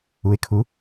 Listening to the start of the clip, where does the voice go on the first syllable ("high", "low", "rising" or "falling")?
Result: rising